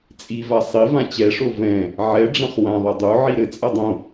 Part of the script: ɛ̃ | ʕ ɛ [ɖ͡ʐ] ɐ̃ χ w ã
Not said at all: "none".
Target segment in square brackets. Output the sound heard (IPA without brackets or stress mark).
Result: ɖ͡ʐ